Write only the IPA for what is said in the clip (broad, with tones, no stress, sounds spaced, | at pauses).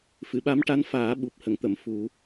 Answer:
f ɨ˨˩˨ ɓ a˧˥ m ʈ a˧˥ n f aː˨˩˦ ɓ u˨˩ p̚ h ə˨˩˨ ŋ t̪ ə˨˩˨ m f u˨˩˦